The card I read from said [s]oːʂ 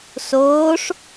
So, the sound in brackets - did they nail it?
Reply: yes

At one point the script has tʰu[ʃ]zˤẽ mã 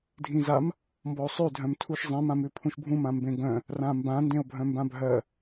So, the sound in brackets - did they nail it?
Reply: yes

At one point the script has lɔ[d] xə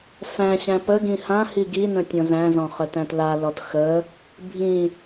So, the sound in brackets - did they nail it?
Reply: no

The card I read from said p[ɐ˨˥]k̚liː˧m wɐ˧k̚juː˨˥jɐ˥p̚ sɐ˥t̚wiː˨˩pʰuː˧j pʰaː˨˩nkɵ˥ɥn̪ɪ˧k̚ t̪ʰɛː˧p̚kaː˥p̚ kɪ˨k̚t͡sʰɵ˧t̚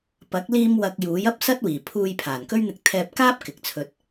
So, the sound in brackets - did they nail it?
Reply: yes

